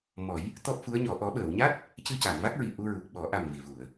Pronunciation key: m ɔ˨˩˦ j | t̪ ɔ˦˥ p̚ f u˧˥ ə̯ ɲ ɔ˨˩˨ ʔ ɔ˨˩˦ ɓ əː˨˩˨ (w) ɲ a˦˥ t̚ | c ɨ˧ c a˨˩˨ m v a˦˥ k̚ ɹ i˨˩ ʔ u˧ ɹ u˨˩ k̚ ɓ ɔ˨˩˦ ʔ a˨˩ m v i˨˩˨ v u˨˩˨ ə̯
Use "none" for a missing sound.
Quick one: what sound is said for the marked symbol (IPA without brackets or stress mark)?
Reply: w